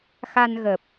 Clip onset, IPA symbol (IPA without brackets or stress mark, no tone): x